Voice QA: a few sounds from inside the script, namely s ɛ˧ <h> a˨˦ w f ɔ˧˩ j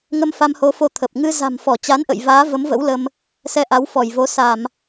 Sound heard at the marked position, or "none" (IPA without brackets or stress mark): ʔ